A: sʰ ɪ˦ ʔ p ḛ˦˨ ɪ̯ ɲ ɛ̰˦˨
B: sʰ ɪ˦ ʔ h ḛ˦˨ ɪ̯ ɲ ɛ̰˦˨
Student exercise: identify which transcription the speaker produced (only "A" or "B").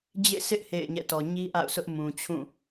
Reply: B